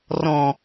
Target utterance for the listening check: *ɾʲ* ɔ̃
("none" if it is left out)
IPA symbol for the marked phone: r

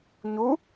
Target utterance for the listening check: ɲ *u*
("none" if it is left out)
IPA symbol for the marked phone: u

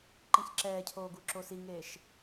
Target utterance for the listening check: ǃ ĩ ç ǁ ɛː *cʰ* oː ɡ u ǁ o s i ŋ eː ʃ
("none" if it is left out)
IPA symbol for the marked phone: cʰ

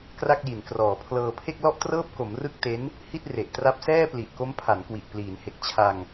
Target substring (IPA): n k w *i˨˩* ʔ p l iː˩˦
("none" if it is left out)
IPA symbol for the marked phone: i˨˩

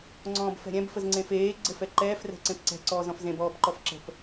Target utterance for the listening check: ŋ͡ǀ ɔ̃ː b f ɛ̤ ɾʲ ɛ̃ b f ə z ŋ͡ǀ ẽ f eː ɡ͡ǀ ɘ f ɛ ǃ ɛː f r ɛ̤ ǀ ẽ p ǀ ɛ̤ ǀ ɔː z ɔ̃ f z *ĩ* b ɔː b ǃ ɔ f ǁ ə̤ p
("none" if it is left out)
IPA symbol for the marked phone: ẽ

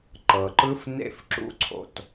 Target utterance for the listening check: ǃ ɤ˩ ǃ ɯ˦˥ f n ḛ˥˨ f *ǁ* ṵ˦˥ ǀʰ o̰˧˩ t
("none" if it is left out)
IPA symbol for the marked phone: ǁ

